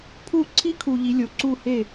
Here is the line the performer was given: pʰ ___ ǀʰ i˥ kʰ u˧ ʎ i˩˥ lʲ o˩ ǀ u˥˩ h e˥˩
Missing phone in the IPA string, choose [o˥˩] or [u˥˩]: u˥˩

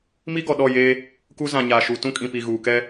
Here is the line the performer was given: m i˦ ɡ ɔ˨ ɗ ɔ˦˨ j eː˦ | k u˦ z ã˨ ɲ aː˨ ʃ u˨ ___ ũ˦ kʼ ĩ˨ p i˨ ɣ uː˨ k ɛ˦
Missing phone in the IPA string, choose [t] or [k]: t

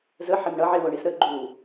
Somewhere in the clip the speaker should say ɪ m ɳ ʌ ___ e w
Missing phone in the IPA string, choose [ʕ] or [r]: ʕ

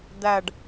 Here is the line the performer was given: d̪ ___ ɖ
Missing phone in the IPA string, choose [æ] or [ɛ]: æ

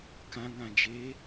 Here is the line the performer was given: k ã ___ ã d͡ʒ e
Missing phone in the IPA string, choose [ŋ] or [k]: ŋ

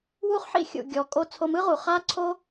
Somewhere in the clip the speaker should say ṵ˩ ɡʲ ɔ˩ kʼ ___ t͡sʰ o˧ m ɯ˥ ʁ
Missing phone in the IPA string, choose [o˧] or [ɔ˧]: o˧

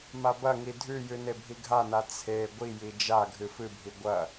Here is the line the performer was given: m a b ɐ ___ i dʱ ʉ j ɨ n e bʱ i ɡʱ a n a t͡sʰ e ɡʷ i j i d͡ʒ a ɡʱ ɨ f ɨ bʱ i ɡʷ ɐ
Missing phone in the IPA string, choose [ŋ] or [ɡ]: ŋ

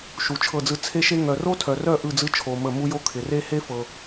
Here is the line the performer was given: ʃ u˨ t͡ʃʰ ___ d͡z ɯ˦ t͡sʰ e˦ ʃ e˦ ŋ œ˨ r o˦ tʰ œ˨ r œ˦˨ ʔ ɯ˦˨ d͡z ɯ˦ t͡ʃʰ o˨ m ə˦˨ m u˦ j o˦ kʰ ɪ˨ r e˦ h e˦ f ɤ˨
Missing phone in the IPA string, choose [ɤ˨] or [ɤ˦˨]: ɤ˦˨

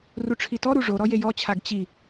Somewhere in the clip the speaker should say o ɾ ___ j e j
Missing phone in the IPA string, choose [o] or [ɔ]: ɔ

